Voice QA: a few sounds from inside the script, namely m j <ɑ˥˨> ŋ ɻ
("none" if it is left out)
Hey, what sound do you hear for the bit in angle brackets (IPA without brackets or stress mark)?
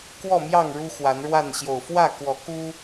ɑ˥˨